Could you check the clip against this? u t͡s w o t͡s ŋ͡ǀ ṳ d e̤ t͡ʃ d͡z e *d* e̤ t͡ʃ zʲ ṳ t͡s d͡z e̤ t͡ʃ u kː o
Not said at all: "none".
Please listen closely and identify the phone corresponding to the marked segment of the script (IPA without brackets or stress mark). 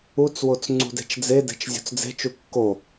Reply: d